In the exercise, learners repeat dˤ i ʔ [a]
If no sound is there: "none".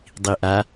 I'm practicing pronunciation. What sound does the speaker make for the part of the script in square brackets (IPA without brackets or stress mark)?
a